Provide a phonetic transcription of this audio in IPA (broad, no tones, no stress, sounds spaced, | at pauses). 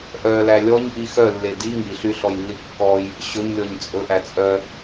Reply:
ʔ œ l æ lʲ ɔ ɲ ʔ i x œ lː e d i ŋ i ɬ y ɬ ɔ j lː i kː ɔ j | ɕ ɵ ɲ lʲ ɔ ɲ t͡sʼ ɵ ʔ æ t͡sʼ œ